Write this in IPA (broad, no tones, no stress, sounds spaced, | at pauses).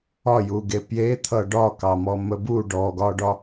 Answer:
ɒ j u ɡ e p j e t̪ʰ ʌ ɖ ɒ k ɑ m ɔ m ə b u ɖ ɔ ɡ ɒ ɖ ɒ